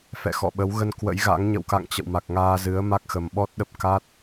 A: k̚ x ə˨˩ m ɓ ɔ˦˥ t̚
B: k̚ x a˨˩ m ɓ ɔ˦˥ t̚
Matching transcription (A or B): A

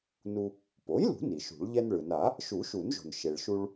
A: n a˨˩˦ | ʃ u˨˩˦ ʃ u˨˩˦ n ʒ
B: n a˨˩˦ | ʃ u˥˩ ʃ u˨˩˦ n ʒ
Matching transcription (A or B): A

